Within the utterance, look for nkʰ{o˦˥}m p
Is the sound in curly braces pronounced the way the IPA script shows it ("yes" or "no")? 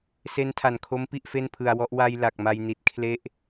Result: yes